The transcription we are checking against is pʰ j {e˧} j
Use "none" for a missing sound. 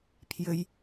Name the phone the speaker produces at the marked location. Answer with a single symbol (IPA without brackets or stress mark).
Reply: ɘ˧